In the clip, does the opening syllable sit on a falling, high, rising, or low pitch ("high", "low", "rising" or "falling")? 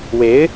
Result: rising